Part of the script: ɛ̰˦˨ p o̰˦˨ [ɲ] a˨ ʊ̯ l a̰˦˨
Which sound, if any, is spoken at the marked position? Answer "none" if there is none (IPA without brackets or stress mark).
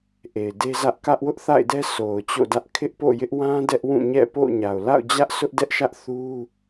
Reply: ɲ